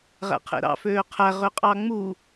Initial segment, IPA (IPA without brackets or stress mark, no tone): ʁ